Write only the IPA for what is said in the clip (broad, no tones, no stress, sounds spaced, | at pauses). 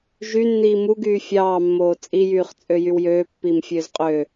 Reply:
ʒ y nː iː m u ɡ yː fʲ ɑː mː oː t͡sʼ i j yː χ t͡sʼ ø j y w j øː pː iː m fʲ øː z qʼ øː